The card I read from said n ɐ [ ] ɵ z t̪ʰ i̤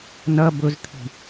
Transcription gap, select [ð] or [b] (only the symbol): b